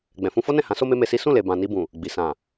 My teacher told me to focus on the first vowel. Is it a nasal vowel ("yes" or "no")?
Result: yes